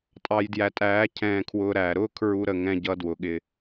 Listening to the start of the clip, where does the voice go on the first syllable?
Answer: low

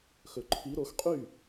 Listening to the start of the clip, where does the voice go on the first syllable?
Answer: low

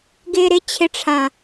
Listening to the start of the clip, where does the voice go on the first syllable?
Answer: low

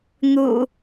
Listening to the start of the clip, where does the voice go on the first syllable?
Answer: low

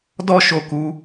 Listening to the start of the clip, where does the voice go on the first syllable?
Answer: high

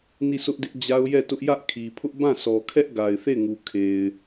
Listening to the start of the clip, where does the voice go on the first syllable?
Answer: falling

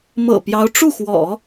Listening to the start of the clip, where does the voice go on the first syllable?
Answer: low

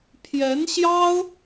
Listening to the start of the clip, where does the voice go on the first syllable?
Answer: rising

